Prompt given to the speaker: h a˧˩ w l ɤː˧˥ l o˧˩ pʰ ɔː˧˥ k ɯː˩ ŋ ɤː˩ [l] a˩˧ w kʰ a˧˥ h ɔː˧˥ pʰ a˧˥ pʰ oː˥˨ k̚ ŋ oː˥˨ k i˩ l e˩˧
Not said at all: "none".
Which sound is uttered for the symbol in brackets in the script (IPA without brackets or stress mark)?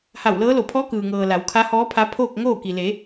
l